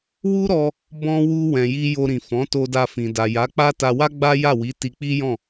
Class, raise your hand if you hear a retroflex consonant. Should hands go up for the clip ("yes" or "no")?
no